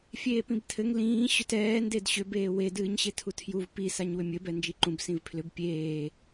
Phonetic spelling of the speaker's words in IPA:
fʲ eː p ĩ b tʰ ɘ ŋ l ĩː ɕ ʏ t ɛː n d e d ɕ ʏ b eː w e d ɨː ɲ ɕ e tʰ u tʰ j u v p i s a ɲ w ʏ mʲ ɘ b ɛ n d͡ʒ i ǃ ũ b s ĩ v pʰ l ʏ b pʲ eː

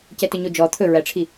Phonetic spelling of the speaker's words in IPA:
c ɛ t ɵ ɲ o d͡ʒ ɔ t̪ʰ ɵ ɹ æ ʈ͡ʂʰ i

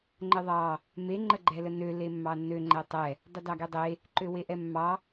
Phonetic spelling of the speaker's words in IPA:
ŋ͡ǃ ə ðˤ ɑ | m e ŋ͡ǃ ə ɡ͡ǃ ɛ l ə n ø l e mː ɑ nː ø ŋ͡ǃ ɛ tˤ ɛ | dˤ ə d ɑ ɡ e dˤ e | ǃ ø w e ʔ ɛ mː ɑ

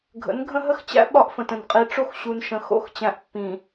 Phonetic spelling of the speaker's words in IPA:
ɡʱ ə̰˨˦ n ɡʱ ə̃˦ ɦ ə˦ x t͡ɕ æ̰˦ ɓ ɒ˦ ʔ f ə̃˨ t ə̃˨ n qʼ i˨ ʈ͡ʂ o˦ x ɕ u˨ n ʃ ə̃˨ x o̰˦˨ x t͡ɕ æ̃˨ ʔ pː ĩ˨

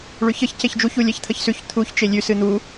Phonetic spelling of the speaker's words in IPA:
ɭ ʉ ç ə ç c e ç d͡ʒ u ç u lʲ ɛ ç t̪ʰ ə ç s ʉ ç t̪ʰ u ç t͡ʃ e lʲ ʉ s ɨ n̪ u

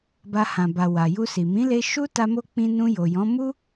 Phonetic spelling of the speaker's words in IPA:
b a˧ h ã˨ b a˨ w a˨ j u˧ s i˨ m ĩ˨˦ l e˧ ʃ u˦ t a˦ m o˦ k͡p ĩ˧ n ũ˧ j o˨ j ɔ̃˨˦ m u˦

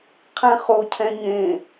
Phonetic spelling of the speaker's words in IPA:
qʰ ɛ̃ χ o cʰ ɛ̃ ɲ ẽ

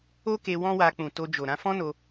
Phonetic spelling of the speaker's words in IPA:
o˦ k e˧ w ɔ̃˦ w a˧ k͡p ũ˨ t o˧ d͡ʒ o˨ ɾ ã˧ f ɔ̃˦ n o˧

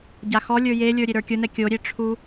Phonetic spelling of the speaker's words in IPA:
ɟ a x ɔ lʲ ə˞ j e lʲ ə˞ ɾʲ e ɾ ə˞ kʲ ʊ n ɛ kʲ o ɾʲ e ʈ͡ʂʰ u

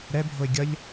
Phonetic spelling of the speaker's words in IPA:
ɾ ɛ bʱ o ɪ̯ ɡʲ ʌ ʎ

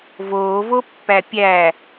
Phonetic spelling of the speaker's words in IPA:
v oː v o pː æ pʲ æ

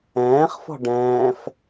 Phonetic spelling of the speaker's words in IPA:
ɛ̃ː χ f ɔ̤ ɖ ɛ̃ː f

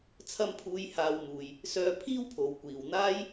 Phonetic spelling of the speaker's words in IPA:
t͡sʰ ɐ˧ m pʰ uː˨˧ j h aː˧ w m uː˨ j | s œː˧ pʰ iː˥ w pʰ o˨ w kʷ iː˨ w n̪ aː˥ j

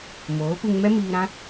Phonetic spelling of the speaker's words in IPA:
m oː˨˦ p ɨ˧ ŋ m ɛ˦ m iː˧ ɾ ã˦

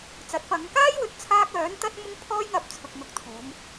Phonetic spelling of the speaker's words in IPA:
t͡s ɐ˨˥ t̚ f ɐ˨˧ ŋ k aː˥ j w ɵ˨˥ t̚ t͡sʰ aː˥ k̚ œː˨˥ n t̪ ɐ˥ t̚ m ʊ˥ ŋ pʰ ɔː˥ j ŋ ɐ˧ p̚ t͡sʰ ʊ˨ k̚ n̪ ʊ˧ k̚ t̪ʰ uː˨˧ m

